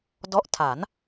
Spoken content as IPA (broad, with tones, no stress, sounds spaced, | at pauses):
d ɔ˦˥ ʔ tʰ a˩˦ n